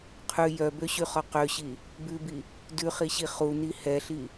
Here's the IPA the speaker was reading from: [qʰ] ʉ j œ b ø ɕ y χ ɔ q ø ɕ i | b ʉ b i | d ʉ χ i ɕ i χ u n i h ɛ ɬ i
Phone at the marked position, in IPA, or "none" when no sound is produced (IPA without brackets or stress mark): qʰ